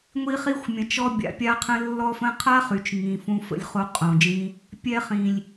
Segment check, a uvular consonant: present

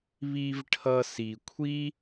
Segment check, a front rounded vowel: absent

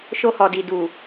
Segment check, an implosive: absent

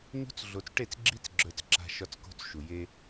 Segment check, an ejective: absent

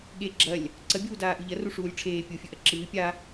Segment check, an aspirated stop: present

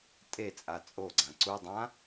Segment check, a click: present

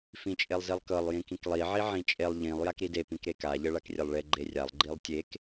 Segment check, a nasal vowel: present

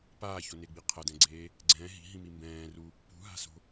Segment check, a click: present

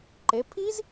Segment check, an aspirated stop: present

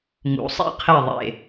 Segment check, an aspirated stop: present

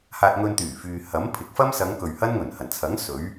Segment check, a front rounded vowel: present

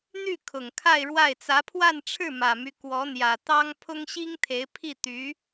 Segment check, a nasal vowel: absent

